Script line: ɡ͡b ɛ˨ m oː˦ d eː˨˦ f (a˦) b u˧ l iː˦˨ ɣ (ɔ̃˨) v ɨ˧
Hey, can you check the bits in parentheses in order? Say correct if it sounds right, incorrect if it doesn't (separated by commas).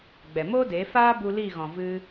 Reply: incorrect, correct